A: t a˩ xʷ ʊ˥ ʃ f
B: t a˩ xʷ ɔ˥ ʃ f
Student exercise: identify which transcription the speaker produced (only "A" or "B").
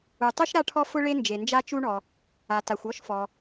B